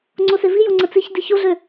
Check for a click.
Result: present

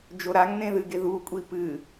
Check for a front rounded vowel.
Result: absent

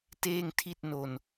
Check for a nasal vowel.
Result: absent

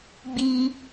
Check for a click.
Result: absent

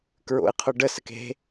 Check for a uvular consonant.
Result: present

